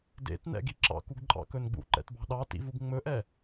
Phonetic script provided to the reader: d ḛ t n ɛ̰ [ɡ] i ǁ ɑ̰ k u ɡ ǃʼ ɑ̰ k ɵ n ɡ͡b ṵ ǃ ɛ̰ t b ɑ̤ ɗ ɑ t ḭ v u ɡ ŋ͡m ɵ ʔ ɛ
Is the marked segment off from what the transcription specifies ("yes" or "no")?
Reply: no